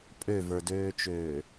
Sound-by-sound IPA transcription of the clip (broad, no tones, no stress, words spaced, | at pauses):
pʼøvə˞døːt͡ʃøː